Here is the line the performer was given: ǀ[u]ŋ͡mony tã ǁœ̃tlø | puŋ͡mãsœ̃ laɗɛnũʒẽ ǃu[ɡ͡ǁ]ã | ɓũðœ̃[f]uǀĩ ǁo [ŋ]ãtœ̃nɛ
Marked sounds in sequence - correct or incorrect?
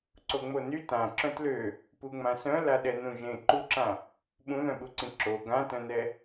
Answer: incorrect: o, incorrect: ǁ, incorrect: ɓ, incorrect: ɡ

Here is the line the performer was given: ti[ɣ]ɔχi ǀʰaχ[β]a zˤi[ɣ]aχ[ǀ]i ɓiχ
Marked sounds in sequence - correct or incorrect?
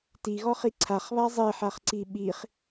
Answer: correct, correct, incorrect: ħ, correct

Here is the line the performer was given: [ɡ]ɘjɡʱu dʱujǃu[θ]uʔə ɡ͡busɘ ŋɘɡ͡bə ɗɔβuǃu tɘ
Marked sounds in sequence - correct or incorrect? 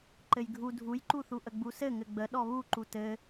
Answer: incorrect: ǃ, correct

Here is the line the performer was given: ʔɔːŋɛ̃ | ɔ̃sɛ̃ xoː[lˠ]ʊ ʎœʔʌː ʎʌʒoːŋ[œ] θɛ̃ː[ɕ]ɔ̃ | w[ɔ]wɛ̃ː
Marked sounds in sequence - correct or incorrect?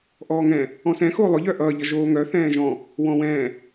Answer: correct, correct, incorrect: ʒ, incorrect: ɔ̃

